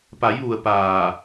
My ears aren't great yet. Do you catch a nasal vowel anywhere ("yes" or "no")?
no